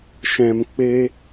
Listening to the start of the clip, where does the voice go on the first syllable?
low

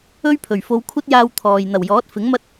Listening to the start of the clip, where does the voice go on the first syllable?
high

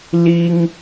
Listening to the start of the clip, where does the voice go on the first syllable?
high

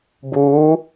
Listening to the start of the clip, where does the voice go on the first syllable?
rising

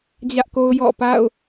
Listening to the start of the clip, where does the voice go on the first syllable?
high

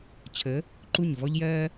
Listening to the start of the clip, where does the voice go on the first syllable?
rising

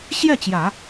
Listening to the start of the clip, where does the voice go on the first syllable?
falling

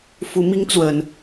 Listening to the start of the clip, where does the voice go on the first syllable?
rising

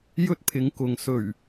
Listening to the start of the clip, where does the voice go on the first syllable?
high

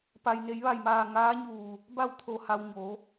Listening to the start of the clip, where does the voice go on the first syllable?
low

